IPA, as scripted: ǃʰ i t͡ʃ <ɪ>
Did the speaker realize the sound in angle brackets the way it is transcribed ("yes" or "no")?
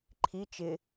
yes